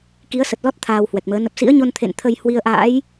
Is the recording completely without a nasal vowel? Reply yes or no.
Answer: yes